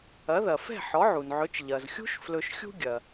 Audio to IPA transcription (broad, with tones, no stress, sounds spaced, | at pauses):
ɐ˩˥ ð ɐ˩ f ɛ̤˥˩ ħ ɔ˩˥ ʕ u˩ n ʕ ɵ˩˥ t͡ʃ ʎ ɐ˩ z xʲ ṳ˥ ʃ f l ɵ˧ ʃ xʲ ṳ˥ ɡʲ ɐ˩